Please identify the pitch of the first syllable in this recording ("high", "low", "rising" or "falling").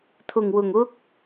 low